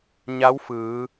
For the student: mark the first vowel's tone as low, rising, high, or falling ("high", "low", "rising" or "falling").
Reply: rising